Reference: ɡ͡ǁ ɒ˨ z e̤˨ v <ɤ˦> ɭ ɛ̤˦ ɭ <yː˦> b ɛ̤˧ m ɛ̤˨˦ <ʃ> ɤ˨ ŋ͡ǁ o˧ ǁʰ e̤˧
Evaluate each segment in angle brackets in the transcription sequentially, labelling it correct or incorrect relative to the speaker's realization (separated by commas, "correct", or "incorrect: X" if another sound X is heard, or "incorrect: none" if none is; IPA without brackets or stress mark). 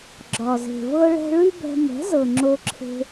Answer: correct, incorrect: y˦, incorrect: z